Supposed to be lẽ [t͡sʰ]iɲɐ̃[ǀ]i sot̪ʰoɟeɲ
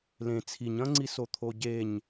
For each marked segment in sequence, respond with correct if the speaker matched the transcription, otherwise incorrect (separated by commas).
correct, incorrect